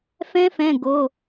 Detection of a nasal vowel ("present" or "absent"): present